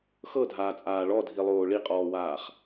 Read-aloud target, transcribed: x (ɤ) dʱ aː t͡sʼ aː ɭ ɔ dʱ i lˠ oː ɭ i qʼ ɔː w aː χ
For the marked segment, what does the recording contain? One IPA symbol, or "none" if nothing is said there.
ɤ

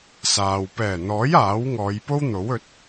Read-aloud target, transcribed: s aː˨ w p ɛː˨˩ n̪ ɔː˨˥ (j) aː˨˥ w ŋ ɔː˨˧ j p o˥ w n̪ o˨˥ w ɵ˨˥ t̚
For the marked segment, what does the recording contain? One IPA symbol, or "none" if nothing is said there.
j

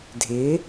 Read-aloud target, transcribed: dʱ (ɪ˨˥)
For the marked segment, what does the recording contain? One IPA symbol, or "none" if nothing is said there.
ɪ˨˥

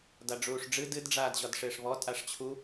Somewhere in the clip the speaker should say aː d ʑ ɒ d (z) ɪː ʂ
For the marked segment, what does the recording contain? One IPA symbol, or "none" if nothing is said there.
ʂ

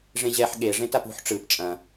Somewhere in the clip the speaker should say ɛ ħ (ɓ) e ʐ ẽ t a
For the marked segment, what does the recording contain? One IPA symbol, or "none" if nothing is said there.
ɠ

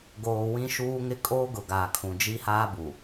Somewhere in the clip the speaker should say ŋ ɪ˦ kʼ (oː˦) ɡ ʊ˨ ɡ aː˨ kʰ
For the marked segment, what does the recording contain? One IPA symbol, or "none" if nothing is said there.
oː˦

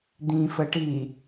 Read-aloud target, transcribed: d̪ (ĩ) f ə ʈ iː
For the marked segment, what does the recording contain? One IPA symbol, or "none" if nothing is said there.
ĩ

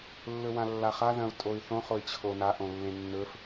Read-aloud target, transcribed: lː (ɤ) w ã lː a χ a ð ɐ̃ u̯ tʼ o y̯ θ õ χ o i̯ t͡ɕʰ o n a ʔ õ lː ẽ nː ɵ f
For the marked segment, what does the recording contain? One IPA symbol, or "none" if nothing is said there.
ɵ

